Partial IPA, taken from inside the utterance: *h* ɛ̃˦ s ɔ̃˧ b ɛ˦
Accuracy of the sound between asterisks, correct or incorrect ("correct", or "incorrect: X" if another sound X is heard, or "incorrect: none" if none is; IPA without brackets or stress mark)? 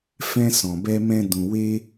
incorrect: f